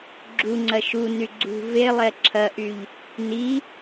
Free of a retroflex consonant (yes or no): yes